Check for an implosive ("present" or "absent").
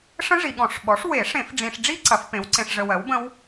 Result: present